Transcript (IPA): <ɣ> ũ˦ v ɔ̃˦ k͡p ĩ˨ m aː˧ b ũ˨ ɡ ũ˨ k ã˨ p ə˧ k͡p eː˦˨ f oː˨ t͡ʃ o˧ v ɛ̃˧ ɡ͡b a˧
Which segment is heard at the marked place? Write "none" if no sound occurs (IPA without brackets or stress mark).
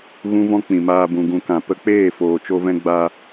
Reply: ɣ